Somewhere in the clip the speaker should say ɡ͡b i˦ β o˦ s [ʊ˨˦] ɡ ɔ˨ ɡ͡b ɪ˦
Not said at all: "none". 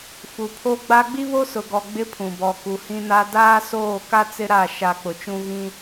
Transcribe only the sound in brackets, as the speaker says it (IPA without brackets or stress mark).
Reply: ʊ˨